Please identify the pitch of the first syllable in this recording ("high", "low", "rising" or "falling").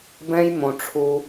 high